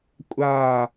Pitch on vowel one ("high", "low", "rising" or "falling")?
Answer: falling